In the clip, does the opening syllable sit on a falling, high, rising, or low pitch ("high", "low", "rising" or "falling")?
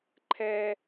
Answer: high